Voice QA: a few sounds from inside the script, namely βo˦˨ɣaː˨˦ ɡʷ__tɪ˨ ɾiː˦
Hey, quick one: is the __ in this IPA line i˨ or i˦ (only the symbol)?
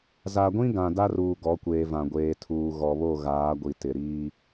i˨